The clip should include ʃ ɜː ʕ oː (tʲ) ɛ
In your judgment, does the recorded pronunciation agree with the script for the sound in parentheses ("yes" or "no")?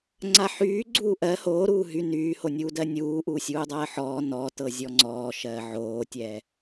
yes